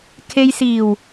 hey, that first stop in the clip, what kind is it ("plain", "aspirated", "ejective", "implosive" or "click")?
aspirated